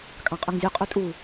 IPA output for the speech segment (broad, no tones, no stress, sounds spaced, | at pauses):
kʼ ɑ̃ qʼ ɵ ŋ zʲ u qʼ ø tʼ u